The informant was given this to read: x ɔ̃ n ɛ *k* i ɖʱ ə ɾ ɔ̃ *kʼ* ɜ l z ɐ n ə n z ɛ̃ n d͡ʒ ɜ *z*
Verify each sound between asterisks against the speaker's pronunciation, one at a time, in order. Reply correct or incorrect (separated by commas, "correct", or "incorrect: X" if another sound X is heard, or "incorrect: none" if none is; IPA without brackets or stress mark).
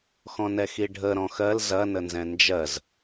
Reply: incorrect: x, incorrect: x, correct